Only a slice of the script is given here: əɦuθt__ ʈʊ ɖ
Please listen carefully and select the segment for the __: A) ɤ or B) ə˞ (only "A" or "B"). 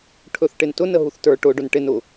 B